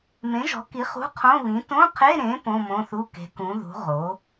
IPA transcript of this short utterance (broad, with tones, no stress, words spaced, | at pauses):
mẽ˩˥ʒɔ̤˩˥ki˩˥ χṳ˧˥˧qʰõ˧˥˧βĩ˩˥ tõ˧˥˧qʰe˧˥˧ ɾẽ˩˥ põ˧˥˧mõ˧˥˧θu˧˥˧ ke̤˩˥kũ˩˥ðṳ˩˥ ʁo˩˥